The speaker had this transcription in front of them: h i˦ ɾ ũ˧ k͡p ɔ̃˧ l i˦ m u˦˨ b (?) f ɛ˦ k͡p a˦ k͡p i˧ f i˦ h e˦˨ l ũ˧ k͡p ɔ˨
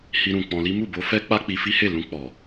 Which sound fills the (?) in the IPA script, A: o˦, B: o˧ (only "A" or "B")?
B